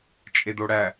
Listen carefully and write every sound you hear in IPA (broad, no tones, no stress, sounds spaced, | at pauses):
t͡ʃʼ e d o ɽ æ